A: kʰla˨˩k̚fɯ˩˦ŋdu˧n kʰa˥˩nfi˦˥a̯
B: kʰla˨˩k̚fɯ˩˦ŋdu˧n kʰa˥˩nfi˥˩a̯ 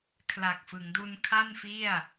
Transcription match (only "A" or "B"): B